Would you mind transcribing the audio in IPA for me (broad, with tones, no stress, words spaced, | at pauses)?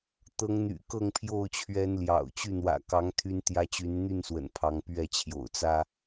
t̪ɤ˨˦ŋn̪y̰˨˩kɤ˥˨ŋpʰjo˥˨ʊ̯ t͡ɕʰɥɛ˨˦n ljɑ̰˨˩ʊ̯t͡ɕy˥˨ n̪wä̰˨˩kɑ˨˦ŋ t̪ʰy˦nt̪jä˦ t͡ɕy˨˦nn̪y˥˨nswə̰˨˩n pʰɑ˨˦ŋpɥɛ˥˨t͡ɕʰjo̰˨˩ʊ̯ t͡sä˦